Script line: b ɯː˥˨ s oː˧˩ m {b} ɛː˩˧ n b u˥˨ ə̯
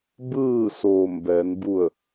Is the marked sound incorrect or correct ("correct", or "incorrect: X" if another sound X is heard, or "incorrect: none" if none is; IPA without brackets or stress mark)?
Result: correct